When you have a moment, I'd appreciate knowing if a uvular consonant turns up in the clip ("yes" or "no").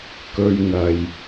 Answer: no